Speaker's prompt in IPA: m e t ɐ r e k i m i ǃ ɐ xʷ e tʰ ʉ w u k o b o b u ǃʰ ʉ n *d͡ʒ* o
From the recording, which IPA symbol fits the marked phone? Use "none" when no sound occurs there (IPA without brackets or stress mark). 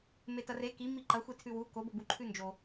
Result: d͡ʒ